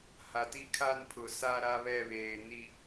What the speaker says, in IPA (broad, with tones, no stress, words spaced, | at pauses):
ha˨ti˦kʰa˦npʰʊ˨ sa˦ɾa˦βɛ˦˨ βeː˨ni˨